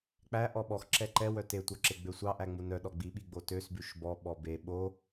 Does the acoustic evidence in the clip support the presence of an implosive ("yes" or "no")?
yes